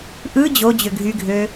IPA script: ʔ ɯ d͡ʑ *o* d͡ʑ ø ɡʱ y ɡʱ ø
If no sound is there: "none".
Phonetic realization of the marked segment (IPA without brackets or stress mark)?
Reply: o